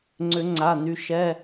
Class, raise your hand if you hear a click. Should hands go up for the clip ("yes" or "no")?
yes